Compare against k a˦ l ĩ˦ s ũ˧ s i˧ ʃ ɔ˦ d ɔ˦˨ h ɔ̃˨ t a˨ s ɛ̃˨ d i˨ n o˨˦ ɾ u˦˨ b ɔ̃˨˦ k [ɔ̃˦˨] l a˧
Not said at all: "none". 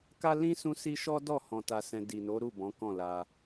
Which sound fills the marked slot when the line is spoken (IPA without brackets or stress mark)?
ɔ̃˦˨